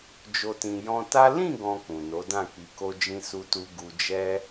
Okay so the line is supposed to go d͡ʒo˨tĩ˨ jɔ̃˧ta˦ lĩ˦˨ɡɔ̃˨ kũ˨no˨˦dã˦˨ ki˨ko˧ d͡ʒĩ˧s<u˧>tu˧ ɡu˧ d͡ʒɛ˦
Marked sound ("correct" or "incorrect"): correct